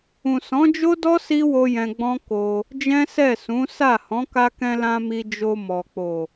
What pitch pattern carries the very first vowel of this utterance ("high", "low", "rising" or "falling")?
low